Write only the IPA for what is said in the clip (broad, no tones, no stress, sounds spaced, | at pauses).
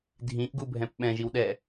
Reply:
dʱ ĩ ʔ ɡ u bʱ ɛ̃ p ɓ ɛ̃ ʒ i w ɗ ɛ